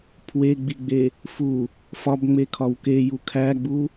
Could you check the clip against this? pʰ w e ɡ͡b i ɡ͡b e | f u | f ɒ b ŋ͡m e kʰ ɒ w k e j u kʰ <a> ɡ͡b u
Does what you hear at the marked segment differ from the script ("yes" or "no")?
yes